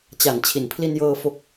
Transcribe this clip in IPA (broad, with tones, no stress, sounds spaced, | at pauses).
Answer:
t͡ɕ a˩˦ n t͡ɕʰ i˩˦ n pʰ l i˧ n j ɤː˧ f o˨˩ k̚